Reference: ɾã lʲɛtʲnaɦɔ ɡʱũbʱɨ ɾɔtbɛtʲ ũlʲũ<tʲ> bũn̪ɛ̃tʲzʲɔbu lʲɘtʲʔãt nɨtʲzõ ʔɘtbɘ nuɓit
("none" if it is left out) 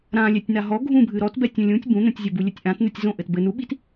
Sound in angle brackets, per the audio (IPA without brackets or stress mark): tʲ